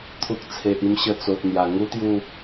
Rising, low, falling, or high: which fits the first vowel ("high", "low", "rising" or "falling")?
low